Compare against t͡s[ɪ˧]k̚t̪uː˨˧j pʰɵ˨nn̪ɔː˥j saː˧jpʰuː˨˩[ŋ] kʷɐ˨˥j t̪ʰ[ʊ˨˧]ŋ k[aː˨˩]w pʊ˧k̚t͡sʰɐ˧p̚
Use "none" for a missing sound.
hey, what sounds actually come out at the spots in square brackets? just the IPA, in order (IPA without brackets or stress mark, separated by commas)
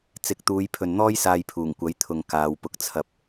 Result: ɪ˨˥, ŋ, ʊ˨, aː˨˧